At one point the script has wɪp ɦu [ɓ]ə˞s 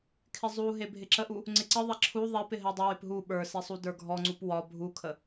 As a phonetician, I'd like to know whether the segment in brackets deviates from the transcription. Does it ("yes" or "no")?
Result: no